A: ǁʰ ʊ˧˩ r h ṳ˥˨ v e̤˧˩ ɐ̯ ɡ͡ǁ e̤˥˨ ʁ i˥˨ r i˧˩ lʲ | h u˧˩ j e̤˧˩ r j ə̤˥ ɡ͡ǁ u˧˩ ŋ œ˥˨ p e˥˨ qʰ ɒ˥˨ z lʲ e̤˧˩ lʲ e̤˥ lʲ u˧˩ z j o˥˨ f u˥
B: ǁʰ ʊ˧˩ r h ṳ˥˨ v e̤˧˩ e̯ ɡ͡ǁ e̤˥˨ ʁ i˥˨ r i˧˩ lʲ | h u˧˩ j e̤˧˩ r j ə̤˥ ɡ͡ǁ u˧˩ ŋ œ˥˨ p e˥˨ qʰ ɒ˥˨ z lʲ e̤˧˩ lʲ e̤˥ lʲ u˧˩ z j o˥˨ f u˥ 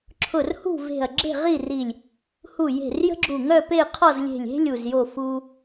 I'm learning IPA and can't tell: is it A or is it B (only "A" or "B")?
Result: A